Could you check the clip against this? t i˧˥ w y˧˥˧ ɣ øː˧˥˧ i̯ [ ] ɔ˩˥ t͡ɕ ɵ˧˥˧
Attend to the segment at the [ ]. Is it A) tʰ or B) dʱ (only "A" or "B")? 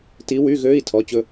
A